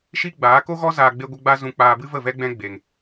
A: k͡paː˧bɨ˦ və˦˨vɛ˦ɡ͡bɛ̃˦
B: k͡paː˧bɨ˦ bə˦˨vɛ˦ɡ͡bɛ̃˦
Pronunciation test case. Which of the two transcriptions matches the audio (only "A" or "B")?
A